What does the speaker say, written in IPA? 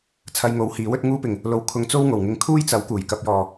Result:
t͡sʰɐ˧jŋo˨˥whiː˨˥w ɵ˧t̚ŋuː˧pɪ˨˩ŋ | lo˨w kʰʊ˧ŋt͡so˥w ŋo˨˩wŋɪ˨˧ŋ kʰuː˥jt͡sɐ˨˥w kuː˨˩jkɐ˧p̚jɔː˨

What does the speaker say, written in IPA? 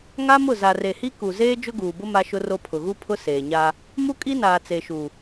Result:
ŋa˦mʊ˦˨ za˨re˨hi˦ ku˨zeː˦ d͡ʒʊ˦ɡuː˨bʊ˦ ma˦ʃʊ˦ro˦ pʰʊ˨ɣu˦ pʰʊ˦ seː˨ɲa˦ | mu˦kʼi˦naː˨ t͡se˨ʃu˨

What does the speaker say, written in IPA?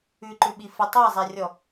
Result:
ʉǃʉɓi fə tˤæzˤærʲɔ

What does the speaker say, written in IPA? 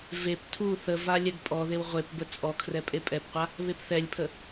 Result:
vep tʰu θəva lʲɛɡpʼɔðew ʁʷep bət͡sʼɔkʰrɛ pʼepʼɛpqʷa | βepθɛlʲpʰə

